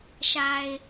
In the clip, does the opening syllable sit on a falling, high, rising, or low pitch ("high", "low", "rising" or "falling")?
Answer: low